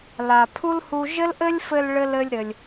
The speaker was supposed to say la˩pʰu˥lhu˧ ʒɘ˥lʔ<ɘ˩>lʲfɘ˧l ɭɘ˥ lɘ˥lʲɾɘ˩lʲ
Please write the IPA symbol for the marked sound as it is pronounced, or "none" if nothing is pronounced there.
ɘ˥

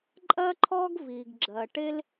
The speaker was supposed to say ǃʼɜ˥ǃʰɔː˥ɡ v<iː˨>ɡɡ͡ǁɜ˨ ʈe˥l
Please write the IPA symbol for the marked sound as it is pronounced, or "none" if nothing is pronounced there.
iː˨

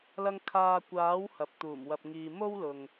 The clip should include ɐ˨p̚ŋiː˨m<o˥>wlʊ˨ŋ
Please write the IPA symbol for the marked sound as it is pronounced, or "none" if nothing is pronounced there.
o˥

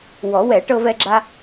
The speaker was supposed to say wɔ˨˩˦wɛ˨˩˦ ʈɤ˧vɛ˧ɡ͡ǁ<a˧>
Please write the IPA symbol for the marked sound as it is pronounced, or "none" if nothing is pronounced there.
a˧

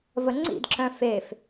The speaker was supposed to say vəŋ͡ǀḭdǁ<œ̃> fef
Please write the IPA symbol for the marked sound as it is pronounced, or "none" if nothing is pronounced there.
œ̃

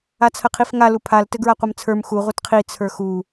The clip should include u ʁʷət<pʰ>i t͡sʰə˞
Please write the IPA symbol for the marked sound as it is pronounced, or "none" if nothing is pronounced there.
qʰ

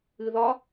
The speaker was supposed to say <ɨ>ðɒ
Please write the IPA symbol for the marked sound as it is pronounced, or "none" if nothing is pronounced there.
ɨ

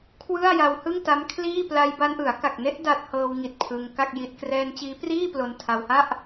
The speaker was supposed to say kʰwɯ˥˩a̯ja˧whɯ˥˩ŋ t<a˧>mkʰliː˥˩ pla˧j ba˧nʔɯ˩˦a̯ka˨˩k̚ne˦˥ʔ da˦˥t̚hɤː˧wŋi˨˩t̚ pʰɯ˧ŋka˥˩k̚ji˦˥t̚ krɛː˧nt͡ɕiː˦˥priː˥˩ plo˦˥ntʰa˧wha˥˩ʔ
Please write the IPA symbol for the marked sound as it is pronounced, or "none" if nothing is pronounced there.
a˦˥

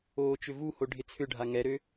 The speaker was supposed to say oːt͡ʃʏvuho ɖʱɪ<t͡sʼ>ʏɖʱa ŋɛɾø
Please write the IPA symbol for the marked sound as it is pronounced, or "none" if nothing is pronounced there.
t͡sʰ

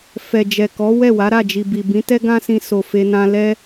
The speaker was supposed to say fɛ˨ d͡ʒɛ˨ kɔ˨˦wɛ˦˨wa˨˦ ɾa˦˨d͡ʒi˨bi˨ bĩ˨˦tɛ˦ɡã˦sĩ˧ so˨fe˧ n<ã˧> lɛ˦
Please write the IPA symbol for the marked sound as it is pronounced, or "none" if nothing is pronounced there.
ã˧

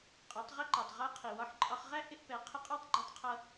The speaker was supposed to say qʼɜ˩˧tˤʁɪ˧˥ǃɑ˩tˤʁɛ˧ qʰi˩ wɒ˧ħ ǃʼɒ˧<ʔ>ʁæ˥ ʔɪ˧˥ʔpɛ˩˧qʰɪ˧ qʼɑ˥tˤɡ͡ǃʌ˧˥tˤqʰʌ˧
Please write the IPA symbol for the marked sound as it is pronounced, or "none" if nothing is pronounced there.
χ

